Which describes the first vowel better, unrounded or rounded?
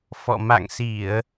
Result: rounded